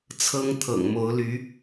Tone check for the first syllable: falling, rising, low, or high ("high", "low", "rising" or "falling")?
high